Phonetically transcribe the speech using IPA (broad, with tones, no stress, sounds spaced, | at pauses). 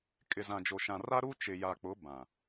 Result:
kʼ ɪ˨ z ã˨ d͡ʒ o˨ ʃ ã˨ r a˦ ɾ u˦ t͡ʃ ɪ˨ j a˨ k͡p ʊ˨˦ b ã˨